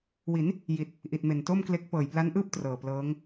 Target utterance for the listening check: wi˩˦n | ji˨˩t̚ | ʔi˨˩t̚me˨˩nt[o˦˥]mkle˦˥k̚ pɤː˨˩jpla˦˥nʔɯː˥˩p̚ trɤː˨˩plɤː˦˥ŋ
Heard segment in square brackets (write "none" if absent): o˥˩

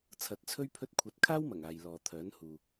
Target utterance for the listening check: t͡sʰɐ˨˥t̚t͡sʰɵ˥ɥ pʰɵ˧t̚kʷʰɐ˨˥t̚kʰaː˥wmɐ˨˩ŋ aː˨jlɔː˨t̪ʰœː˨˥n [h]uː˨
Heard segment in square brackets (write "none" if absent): h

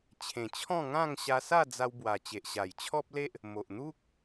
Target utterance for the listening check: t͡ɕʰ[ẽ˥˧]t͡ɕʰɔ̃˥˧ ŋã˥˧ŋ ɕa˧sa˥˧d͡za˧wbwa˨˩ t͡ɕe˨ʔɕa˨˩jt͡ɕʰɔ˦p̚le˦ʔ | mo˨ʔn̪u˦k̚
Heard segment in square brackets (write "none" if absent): ẽ˨˩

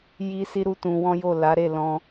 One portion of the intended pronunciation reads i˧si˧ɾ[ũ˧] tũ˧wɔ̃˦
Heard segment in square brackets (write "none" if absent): u˧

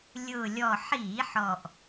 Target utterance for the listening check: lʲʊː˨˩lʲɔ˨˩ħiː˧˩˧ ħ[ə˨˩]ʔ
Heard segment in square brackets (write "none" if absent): ɔ˨˩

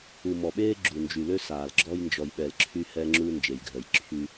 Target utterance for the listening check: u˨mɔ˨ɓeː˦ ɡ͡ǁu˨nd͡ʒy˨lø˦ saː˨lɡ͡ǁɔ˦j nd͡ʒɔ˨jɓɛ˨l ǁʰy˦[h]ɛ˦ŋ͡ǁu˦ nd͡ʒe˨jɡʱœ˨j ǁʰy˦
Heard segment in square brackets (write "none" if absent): h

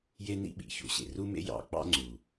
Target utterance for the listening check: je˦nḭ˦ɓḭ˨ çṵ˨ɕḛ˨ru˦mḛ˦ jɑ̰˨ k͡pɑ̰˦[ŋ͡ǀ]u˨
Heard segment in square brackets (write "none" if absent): ŋ͡ǀ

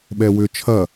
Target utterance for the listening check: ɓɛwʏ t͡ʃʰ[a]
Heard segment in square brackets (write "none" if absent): ɐ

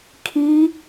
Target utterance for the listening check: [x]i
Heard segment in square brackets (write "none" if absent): kʰ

